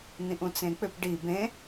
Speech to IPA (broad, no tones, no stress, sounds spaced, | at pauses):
n̪ ĩ ʔ ũ t͡s ẽ k͡p ʏ p ɖ i b ẽ